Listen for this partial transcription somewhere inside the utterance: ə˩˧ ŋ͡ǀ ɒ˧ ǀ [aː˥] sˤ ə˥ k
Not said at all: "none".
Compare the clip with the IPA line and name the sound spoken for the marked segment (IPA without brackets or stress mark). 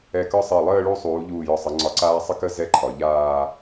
aː˥